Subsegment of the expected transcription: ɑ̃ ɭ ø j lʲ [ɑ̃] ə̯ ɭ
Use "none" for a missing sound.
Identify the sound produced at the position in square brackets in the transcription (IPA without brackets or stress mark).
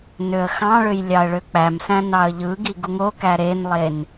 ɑ